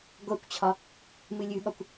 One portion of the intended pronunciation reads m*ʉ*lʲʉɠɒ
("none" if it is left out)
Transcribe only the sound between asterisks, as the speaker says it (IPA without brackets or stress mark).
ɨ